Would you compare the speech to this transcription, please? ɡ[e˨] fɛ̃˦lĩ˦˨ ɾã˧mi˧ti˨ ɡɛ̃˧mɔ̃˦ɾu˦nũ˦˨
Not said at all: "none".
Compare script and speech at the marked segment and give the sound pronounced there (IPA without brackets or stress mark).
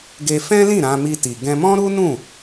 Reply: e˧